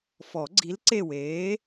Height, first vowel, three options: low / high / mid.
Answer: mid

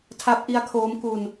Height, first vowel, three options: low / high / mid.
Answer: low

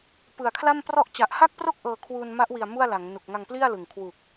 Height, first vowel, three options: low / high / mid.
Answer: high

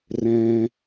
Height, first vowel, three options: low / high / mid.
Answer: mid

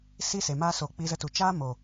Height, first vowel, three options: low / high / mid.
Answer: high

